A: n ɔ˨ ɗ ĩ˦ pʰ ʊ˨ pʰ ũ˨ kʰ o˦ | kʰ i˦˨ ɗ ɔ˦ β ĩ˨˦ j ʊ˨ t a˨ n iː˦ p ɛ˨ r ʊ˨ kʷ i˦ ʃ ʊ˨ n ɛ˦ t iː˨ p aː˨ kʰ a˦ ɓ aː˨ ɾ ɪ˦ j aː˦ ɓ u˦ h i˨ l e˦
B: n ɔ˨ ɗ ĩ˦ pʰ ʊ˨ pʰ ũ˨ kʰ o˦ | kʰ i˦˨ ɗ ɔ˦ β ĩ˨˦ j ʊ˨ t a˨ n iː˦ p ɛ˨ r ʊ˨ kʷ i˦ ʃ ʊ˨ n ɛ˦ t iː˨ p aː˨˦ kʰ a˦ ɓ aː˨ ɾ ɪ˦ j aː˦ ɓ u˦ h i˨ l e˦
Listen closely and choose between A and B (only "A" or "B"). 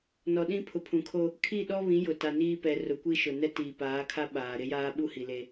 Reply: B